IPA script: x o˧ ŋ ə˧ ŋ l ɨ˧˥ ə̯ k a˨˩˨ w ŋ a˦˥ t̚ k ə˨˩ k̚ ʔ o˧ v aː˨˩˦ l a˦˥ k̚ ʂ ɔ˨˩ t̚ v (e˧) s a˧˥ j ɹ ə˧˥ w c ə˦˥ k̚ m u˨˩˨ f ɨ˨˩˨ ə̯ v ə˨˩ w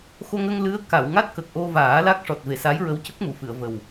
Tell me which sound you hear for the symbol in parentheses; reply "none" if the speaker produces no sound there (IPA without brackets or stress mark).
e˨˩